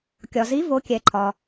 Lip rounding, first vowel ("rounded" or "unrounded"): rounded